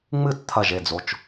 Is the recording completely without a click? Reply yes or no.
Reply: yes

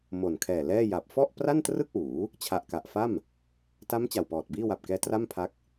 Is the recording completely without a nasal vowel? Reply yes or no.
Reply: yes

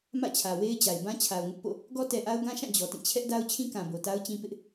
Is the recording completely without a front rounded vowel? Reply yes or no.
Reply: yes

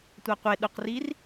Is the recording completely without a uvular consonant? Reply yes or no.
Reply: no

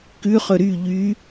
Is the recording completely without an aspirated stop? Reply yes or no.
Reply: yes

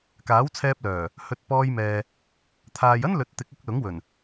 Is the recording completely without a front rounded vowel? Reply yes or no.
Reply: no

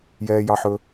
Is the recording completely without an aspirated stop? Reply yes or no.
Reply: yes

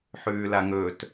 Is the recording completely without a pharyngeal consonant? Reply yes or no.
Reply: no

